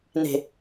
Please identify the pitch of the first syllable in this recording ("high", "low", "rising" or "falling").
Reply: low